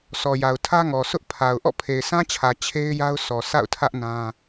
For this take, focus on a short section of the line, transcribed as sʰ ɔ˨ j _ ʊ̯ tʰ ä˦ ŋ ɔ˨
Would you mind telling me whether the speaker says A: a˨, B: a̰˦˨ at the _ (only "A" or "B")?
A